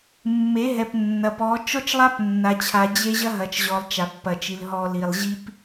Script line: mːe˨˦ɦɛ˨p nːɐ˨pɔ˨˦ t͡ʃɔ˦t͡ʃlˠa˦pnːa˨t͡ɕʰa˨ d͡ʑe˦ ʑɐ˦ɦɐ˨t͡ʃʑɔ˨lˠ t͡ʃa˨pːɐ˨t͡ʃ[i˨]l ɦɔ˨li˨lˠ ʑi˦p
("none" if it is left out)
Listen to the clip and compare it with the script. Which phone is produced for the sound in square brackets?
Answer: i˨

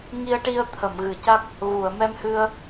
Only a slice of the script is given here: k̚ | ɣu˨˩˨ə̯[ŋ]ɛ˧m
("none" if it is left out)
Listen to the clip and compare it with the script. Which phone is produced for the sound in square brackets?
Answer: m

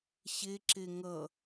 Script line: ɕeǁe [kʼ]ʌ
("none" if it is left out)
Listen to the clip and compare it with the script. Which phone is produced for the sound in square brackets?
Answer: ŋ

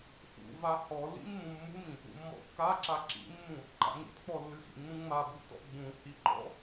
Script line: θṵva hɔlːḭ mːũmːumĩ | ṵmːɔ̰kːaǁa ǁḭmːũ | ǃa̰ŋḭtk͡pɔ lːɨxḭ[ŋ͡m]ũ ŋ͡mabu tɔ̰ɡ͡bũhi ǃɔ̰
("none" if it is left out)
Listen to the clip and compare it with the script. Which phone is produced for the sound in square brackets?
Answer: ŋ͡m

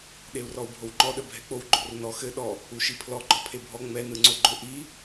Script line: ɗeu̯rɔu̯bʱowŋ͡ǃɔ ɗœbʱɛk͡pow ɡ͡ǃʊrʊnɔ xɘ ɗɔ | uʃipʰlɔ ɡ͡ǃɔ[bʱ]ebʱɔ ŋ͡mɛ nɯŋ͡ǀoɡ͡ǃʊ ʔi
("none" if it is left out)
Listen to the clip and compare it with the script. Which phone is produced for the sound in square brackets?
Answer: pʰ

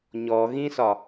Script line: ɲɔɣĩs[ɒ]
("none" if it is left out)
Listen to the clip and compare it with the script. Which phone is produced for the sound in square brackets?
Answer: ɒ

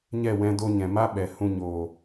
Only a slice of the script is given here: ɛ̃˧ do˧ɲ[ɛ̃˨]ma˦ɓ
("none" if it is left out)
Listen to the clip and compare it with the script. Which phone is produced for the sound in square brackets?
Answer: ɛ̃˨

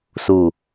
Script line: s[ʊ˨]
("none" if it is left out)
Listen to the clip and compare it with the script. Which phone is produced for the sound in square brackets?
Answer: u˨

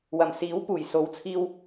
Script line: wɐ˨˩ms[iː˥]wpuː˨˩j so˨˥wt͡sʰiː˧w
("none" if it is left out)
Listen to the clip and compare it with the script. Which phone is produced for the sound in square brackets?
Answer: iː˨˥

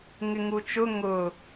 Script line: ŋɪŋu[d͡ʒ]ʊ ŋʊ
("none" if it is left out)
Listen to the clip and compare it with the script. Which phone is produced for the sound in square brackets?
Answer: t͡ʃ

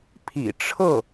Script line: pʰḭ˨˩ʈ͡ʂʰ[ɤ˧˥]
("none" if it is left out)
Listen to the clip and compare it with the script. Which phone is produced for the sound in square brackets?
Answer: ɤ˥˩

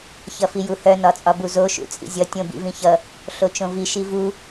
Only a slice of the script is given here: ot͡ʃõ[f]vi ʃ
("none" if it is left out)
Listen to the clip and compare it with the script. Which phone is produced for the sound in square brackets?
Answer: none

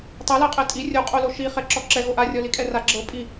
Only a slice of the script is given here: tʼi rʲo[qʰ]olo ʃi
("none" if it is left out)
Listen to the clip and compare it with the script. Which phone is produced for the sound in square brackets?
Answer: qʼ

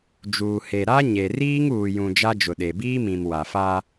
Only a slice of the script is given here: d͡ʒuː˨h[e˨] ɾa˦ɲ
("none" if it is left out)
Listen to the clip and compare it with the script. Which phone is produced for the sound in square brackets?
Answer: e˨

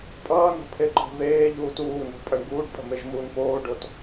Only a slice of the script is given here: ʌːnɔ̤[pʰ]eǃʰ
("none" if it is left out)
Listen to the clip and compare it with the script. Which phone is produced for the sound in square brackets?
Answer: pʰ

